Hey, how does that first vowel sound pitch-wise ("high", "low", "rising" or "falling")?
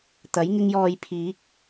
rising